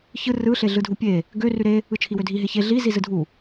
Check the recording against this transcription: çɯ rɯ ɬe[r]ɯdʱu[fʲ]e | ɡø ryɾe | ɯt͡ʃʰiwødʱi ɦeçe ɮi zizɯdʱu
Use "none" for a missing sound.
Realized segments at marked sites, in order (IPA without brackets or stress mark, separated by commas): ɮ, pʲ